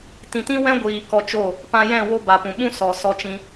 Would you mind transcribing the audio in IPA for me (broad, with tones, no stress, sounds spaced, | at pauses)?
t ĩ˨ t ĩ˦ w ɛ̃˦ ɡʷ iː˨ k ɔ˧ t͡ʃ o˦˨ | p ã˧ j ɛ̃˦˨ w o˦ b a˨ p ũ˨ ɓ ũ˦ s ɔ˨ s ɔ˧ t͡ʃ ĩ˧